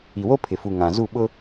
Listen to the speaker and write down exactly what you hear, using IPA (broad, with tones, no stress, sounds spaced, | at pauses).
i˨ w o˦ pʰ ɪ˨ f u˨ ŋ ã˨ z u˦˨ ɓ ʊ˦